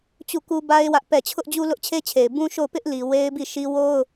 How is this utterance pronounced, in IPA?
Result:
t͡ɕu˦˨ku˦ba˦ɪ̯ wä˦ʔpɛ˦˨ t͡ɕʰʊ˦ʔd͡ʑu˦ lʊ˦ʔt͡ɕʰe˦t͡ɕʰe˨ɪ̯ bũ˦ʃo˦˨ʊ̯ pɪ˦ʔ li˨ we˦ɪ̯bi˦˨ʃi˦ wo˦ʊ̯

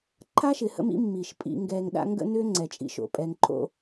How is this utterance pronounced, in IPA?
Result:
ǃʰa˦ʃɪ˨hə̰˦mḭ˦ mːi˨ʃ pʼḭ˦ŋɡɛ˦ŋ ɗa̰˦ŋɡə̰˦nʏ˦ ŋ͡ǀɛ˨t͡ʃʼḭ˦ʃo̰˨ pʼɛ˨ŋǃʰo̰˦

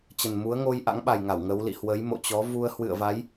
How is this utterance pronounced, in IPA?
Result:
t͡ɕə˨˩nmu˨˦ə̯ŋo˧j ʔa̰˧˥ŋɓa˨˩jŋa˧˩w ŋə˨˦wlḭ˧˨ hwə˨˦jmo̰˧˨t͡ɕɔ˨˦ vu˧ə̯ hwɨ̰˧˨ə̯va˨˦j

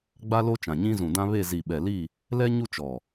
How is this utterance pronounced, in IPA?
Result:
ɡ͡ba˦lo˦ t͡ʃã˨ɲĩ˦zũ˨dã˦ βe˦˨ zi˨ɓɛ˨li˦˨ | lɛ˦ ɲu˦t͡ʃɔ˨

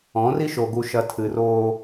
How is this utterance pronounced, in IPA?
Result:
ɔ̃˨˦ri˦ʃo˨ ɡu˨ʃɐ˨ tʰɨ˨roː˦

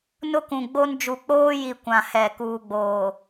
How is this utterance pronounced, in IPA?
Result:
nʊ˦kũ˨ɡ͡bo˦n d͡ʒu˨k͡poː˦ji˨ kʷã˨hɛ˨ kuː˨ɡ͡boː˨

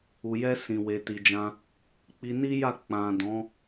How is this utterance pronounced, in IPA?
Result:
u˨jɛ˧ sĩ˨we˨ ti˨d͡ʒã˧ | k͡pi˧ni˦ja˦˨ k͡pã˨ dɔ̃˨˦

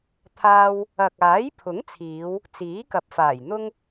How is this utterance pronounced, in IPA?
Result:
t̪ʰaː˧w | ɐ˨k̚aː˨˥j pʰʊ˨˥ŋt͡sʰiː˨˧w | t͡siː˨˥kɐ˨p̚ faː˨˩jn̪ʊ˥ŋ

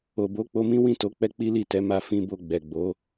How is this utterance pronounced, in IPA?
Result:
o˨bo˨˦k͡po˧mĩ˦ wĩ˦˨to˨˦ k͡pɛ˦k͡pi˦li˦˨tɛ˨˦ ma˦˨ fĩ˧ bo˧ɡ͡bɛ˨ɡ͡bo˨˦

